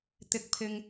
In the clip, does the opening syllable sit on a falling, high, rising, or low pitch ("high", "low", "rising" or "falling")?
low